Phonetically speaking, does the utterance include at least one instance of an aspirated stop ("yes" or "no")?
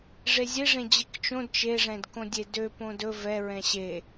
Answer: no